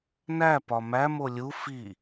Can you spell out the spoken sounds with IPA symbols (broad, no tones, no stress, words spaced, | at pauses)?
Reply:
næ pɒmæmo lʲu fi